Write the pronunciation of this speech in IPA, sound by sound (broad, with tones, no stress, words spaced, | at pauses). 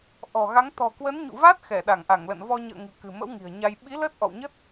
ʔɔ̤˨˩ɣa˨˦ŋ t̪ɔ̤˨˩kwə˨˦nɲṵ˧˨va˦˥t̚ xɛ˧˩ ɗa˧˩ŋʔa˧˩ŋlə̰˧˨n vɔ˧ɲə̰ː˧˨ŋɨ̤˨˩ kɨ̤˨˩mə̰˧˥w ŋi̤˨˩ə̯ɲa˧j ɓi˨˦ ləː˦˥t̚ʔɔ̰˧˨wɲə˦˥t̚